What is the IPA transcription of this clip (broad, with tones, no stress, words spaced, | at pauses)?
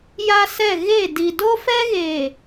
ja˦sɛ˦˨ ɣe˦˨ di˨do˦fɛ˦ɣeː˨